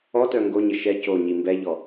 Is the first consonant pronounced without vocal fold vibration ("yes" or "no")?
yes